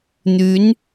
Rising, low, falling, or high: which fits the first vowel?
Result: rising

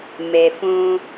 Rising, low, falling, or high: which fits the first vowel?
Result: low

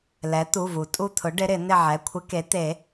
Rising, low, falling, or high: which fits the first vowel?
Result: rising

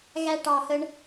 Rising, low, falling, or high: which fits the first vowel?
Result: high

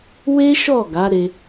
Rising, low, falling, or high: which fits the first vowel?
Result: high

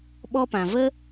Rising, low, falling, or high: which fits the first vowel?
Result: high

